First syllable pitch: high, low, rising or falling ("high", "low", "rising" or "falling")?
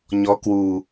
rising